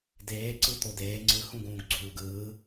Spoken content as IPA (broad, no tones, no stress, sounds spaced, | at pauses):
d eː ǀ ɯ t̪ o d eː ŋ͡ǀ ɯ h ũ ɡ ũː ɡ ɡ͡ǀ uː ɡ ɯː